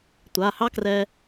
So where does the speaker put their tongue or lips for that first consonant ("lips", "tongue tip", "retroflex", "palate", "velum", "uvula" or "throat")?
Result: tongue tip